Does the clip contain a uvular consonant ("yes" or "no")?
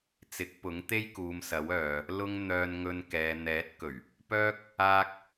no